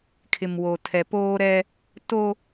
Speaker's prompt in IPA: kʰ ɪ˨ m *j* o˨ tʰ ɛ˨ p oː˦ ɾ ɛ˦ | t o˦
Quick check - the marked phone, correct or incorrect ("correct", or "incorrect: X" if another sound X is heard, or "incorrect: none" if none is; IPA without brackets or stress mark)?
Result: incorrect: w